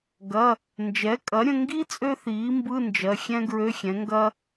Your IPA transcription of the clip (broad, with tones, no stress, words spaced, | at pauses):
ɡɐ˩˧˩ | nd͡ʒɛ˩˥kʼɐ˩˥ɾʲə̃˧ŋɡi˥ t͡sʼø˥θiː˩˥mbɯ˧˥˧ nd͡ʒɜ˩˧˩xʲɛ̃˥ ɡɹø˧˥˧xʲɛ̃˩˥ŋɡɐ˥